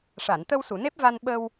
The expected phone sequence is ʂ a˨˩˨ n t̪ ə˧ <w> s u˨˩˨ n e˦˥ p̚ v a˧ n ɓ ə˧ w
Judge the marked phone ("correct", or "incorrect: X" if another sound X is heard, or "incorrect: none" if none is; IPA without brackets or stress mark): correct